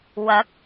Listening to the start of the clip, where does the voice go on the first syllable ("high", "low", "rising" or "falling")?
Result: rising